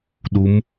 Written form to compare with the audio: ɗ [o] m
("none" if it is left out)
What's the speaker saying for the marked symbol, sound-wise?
u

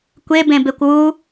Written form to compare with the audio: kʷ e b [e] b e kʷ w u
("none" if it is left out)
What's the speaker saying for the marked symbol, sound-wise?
ẽ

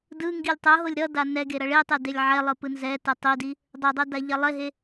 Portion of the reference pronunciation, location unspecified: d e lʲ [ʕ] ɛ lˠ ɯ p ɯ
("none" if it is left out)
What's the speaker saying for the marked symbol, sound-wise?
ʕ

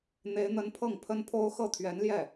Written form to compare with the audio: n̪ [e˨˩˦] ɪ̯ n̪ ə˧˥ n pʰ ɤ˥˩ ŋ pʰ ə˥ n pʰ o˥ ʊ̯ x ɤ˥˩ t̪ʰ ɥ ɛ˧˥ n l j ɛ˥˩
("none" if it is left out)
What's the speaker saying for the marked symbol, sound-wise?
e˧˥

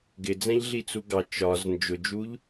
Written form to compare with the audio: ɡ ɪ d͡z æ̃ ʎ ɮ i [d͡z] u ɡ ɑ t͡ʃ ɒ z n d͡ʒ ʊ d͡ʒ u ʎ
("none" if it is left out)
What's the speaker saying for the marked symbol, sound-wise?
t͡s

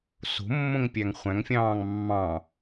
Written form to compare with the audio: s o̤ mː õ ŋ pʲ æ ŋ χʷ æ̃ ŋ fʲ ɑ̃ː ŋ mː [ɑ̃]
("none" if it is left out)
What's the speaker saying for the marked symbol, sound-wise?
ɑ̃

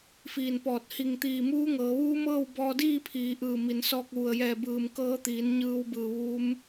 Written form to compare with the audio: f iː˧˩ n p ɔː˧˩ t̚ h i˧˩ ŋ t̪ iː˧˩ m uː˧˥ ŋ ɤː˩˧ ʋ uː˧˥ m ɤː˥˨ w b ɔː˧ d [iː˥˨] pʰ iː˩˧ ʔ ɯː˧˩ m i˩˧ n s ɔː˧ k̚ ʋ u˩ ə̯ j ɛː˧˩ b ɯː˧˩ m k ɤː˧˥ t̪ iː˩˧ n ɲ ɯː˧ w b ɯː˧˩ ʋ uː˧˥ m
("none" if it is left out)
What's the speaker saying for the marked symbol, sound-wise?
iː˥˨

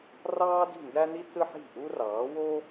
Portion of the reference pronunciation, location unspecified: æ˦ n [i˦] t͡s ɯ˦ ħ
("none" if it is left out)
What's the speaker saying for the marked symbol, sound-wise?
i˦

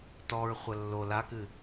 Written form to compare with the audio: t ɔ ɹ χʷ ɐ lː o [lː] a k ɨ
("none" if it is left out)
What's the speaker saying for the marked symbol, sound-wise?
l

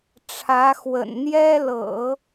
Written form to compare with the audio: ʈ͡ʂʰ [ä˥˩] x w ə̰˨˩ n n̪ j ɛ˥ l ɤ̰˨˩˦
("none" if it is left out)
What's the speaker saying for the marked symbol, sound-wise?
ä˧˥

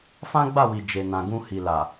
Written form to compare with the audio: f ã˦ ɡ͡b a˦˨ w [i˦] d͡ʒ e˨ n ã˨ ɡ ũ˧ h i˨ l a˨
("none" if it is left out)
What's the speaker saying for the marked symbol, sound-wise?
i˨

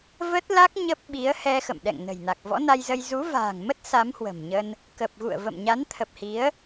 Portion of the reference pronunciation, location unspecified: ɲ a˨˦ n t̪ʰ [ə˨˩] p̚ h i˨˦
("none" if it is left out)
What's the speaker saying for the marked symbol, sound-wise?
ə˨˩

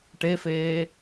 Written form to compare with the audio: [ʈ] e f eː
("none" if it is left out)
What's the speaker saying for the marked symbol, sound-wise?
ʈ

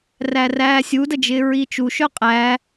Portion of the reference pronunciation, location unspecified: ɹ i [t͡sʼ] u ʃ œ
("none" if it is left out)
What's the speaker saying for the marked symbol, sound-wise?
t͡ʃ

